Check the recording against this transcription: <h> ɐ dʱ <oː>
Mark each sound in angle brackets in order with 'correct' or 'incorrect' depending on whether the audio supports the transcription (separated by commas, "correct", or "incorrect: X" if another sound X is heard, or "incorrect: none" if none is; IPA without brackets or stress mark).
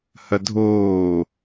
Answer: correct, correct